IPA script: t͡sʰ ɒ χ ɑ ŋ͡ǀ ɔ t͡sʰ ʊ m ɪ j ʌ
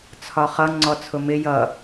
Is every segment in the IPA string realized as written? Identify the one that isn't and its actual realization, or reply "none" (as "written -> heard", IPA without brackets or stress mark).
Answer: ɑ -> ʌ